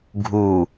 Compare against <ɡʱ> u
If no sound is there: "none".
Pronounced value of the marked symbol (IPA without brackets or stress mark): ɡʱ